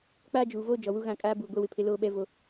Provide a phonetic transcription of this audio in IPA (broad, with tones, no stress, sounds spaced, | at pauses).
k͡p aː˦ d͡ʒ uː˨ v oː˦ d͡ʒ ɔ˨ w u˦ ɣ ã˦˨ kʼ aː˦ b uː˨ ɡʷ ɛ˦ w ɪ˨ pʰ ɪ˦ l oː˦ ɓ ɛ˦ v o˦